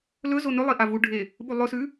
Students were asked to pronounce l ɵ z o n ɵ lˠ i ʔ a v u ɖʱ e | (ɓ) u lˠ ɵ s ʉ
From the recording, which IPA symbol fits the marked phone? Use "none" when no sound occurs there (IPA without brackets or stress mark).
ɓ